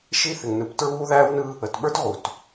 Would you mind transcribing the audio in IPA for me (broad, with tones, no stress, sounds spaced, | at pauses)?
ʃ i˦ θ ɪ˨ ŋ n ɯ˨ p t ɹ uː˦ ð æː˦ w n ɯ˦ | ə˨ t ɓ ə˞˦ t ʁ u˨ t